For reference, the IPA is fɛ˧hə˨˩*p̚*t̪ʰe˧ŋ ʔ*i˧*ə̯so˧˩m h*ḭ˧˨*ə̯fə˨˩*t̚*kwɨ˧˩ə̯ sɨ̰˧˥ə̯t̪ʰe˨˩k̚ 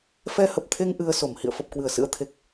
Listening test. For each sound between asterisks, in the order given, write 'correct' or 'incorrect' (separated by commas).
correct, incorrect, correct, incorrect